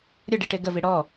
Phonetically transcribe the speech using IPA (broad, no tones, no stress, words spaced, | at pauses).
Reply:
ɾʲə ɖiʈeɡəvi ɽɔ